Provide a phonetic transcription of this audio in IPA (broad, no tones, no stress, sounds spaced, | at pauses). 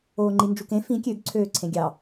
oː ŋ͡ǃ i n d͡ʒ u k ẽ f ĩ kʲ ø ɡ ǀʰ øː ǀʰ ẽ ɡʲ ɑ